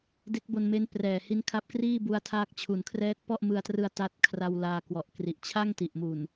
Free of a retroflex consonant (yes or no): yes